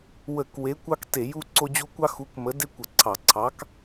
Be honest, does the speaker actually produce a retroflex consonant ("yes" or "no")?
no